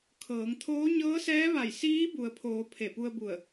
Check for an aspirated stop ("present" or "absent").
present